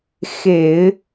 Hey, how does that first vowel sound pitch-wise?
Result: low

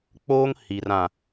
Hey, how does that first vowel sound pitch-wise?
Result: high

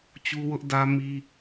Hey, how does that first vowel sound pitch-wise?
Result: high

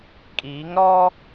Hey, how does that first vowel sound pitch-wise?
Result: rising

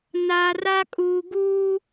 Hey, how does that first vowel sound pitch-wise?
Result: low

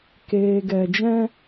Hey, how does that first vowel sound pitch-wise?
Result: low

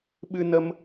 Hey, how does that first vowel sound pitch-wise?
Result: high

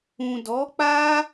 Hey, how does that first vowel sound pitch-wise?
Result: low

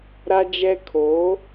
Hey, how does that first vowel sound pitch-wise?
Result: high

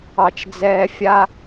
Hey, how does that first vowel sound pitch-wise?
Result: high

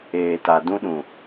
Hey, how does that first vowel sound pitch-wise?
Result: low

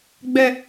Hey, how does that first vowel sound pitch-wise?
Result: high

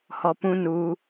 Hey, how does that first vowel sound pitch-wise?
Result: low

